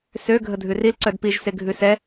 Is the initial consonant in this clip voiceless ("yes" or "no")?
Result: yes